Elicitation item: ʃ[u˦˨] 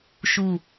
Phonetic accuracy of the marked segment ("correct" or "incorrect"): correct